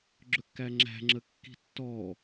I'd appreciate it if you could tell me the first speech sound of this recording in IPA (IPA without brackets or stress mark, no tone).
ɡ͡ǁ